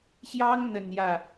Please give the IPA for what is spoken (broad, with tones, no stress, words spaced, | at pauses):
ɕjɑ˥ŋn̪ə˨˩n jä˥˩